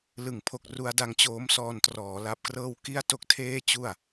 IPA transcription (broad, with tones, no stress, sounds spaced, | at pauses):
l ɯ˩˦ ŋ pʰ o˨˩ k̚ r u˧ a̯ d a˧ ŋ t͡ɕ oː˦˥ m s ɔː˧ n t r ɔː˩˦ l a˦˥ p̚ k r ɤː˥˩ w k i˥˩ a̯ t o˥˩ k̚ tʰ eː˥˩ t͡ɕ u˥˩ a̯